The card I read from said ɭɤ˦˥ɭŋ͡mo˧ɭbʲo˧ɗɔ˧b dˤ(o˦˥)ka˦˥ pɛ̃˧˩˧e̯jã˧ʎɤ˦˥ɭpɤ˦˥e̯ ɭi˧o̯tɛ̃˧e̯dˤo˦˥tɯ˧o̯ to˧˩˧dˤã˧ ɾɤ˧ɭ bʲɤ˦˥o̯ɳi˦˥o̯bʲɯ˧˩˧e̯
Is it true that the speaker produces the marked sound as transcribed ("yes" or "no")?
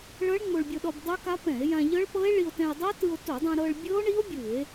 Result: yes